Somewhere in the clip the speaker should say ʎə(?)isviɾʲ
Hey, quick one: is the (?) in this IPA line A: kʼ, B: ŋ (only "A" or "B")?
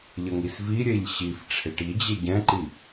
B